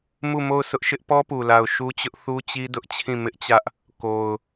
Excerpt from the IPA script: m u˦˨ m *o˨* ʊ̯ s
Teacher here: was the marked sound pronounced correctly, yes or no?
no